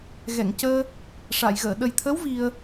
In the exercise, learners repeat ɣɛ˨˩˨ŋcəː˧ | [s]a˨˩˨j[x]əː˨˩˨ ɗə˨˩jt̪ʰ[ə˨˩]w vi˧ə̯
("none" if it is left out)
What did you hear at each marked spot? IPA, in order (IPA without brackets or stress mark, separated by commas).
ʂ, ɣ, ə˧˥